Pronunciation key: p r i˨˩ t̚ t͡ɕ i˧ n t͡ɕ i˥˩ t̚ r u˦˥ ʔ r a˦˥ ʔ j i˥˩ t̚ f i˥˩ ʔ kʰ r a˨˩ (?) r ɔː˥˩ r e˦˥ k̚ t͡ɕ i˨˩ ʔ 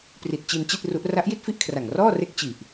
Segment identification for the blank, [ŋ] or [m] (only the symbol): ŋ